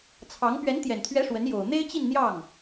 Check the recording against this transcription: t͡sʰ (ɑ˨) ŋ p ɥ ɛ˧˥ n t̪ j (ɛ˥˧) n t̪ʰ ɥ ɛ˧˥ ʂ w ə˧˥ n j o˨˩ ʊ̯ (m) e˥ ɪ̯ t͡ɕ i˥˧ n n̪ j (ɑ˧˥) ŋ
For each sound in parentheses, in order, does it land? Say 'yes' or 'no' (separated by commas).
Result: no, no, no, no